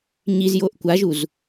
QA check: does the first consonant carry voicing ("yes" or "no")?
yes